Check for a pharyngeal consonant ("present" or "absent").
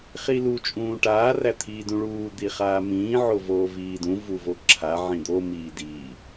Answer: present